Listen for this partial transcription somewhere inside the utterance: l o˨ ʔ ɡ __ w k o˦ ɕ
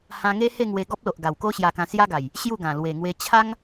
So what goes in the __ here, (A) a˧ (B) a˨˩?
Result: B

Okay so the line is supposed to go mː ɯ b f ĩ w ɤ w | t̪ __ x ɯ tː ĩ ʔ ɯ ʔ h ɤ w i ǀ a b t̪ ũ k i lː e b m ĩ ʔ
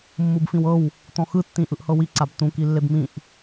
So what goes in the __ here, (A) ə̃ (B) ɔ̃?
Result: B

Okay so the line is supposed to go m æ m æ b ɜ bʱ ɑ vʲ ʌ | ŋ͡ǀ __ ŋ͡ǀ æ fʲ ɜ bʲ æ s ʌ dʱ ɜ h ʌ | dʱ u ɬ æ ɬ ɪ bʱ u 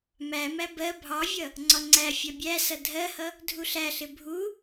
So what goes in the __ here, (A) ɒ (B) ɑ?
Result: A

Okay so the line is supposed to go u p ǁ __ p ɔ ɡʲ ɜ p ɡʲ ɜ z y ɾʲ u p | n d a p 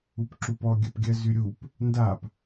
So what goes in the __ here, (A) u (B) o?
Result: A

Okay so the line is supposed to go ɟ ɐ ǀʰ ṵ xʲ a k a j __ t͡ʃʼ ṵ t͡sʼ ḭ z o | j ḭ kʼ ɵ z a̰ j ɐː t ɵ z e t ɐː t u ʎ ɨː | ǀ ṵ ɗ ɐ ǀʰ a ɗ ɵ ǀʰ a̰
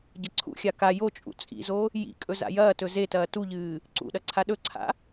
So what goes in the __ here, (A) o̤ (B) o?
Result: B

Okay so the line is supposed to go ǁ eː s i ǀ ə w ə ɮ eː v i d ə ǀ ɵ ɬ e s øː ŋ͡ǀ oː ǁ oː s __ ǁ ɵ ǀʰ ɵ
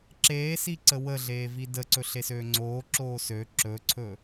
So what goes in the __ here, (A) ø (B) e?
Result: A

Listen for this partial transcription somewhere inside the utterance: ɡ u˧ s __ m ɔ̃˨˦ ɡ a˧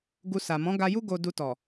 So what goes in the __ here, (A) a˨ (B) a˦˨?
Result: A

